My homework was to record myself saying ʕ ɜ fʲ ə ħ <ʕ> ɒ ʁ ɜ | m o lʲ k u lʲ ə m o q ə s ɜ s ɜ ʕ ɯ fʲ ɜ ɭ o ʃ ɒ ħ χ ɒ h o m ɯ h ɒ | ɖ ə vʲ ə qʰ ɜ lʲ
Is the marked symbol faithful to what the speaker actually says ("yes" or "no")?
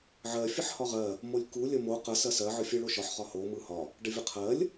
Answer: no